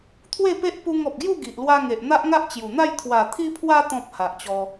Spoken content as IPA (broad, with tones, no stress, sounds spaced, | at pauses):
t̪ʰ w e˥˧ p e˦ ʔ p u˧ ŋ ɔ˨ p̚ ɡ j u˥˧ ɡ i˨ ʔ l w a˧ ŋ e˨ ʔ n̪ a˦ ʔ ŋ a˦ ʔ t͡ɕ j u˨˩ n̪ a˥˧ j t̪ʰ w a˨˩ t̪ʰ i˧ pʰ w a˧ t̪ ɔ̃˨ p̚ h a˨ ʔ t͡ɕ ɔ˧